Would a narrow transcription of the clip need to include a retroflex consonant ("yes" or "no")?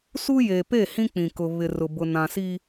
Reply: no